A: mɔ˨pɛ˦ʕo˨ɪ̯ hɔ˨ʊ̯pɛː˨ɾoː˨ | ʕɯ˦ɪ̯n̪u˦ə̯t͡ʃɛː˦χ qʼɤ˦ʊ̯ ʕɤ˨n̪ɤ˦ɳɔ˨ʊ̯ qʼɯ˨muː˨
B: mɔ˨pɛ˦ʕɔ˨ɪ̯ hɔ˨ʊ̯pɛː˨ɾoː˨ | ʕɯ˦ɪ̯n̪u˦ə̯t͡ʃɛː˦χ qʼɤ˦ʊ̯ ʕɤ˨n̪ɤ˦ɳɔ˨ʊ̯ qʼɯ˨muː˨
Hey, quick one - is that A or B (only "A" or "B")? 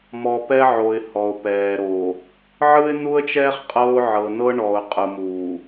A